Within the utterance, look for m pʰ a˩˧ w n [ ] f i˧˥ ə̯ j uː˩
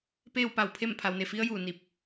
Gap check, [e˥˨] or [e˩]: e˩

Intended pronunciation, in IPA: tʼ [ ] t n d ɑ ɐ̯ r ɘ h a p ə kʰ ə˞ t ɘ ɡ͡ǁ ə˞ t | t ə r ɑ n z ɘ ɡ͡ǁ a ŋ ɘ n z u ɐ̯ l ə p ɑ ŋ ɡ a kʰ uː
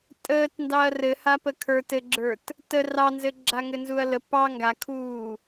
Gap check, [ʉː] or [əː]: əː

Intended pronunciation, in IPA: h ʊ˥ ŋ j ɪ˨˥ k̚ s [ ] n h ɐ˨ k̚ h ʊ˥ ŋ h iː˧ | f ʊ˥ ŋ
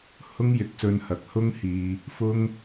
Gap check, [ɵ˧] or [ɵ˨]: ɵ˧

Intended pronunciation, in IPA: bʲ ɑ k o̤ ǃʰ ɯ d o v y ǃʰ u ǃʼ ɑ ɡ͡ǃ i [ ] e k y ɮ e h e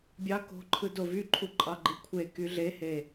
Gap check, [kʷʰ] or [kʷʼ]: kʷʰ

